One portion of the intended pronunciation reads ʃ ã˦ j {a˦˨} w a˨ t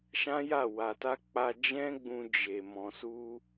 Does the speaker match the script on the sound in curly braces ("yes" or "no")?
yes